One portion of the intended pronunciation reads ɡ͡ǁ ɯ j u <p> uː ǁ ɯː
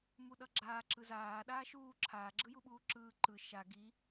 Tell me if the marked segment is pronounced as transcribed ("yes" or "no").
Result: no